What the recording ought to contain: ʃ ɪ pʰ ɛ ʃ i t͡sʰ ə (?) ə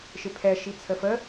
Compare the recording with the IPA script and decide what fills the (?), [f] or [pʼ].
f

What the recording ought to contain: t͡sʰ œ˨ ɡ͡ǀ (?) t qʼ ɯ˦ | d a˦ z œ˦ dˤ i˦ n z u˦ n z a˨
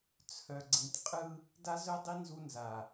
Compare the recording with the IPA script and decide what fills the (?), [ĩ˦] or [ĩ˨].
ĩ˨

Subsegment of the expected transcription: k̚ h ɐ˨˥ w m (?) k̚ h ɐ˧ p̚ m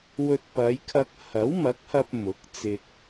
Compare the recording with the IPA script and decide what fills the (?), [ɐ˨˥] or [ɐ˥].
ɐ˨˥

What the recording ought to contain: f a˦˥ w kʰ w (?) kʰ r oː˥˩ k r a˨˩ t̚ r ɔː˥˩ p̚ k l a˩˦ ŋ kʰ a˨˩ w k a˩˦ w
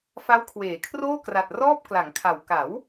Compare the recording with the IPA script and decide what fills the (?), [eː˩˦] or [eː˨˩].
eː˩˦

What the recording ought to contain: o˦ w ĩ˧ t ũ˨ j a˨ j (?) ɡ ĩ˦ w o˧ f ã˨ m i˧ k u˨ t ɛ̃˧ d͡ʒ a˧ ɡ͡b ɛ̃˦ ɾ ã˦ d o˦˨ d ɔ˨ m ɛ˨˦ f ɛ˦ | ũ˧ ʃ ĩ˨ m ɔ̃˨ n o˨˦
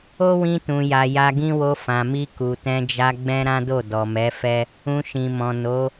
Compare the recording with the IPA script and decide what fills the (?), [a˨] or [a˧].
a˧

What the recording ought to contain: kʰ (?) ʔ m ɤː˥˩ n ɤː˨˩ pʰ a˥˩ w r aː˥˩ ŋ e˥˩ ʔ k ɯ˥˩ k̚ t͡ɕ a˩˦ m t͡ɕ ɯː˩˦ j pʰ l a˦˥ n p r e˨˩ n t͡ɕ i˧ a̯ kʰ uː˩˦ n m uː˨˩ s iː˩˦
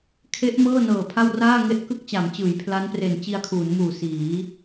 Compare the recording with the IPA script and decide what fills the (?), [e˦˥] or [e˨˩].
e˦˥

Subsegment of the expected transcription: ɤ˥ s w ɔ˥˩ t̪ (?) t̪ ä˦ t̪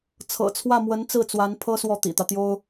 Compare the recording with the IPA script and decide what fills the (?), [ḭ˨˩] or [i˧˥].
ḭ˨˩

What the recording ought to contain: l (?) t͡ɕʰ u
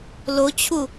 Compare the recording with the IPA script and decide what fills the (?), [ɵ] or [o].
o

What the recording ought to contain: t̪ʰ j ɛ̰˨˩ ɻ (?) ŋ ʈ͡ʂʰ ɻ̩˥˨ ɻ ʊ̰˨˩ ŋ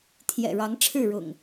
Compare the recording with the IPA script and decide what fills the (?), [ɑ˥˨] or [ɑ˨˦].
ɑ˨˦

